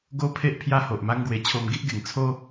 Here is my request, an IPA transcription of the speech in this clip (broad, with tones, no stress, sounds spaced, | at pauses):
ɡ o˦ pʰ e˦ ʔ pʰ j a˦ h o˨ ʔ m a˦ ŋ ɡ w e˧ t͡ɕʰ o˧ m ɡ i˦ ʔ ɡ e˨˩ ŋ t͡sʰ o˦